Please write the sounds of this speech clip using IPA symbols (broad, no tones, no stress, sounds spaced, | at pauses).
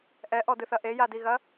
ʔ ɛ ʔ ɔ d ɨ θ ɐ ʔ e j a d i ɣ ɐ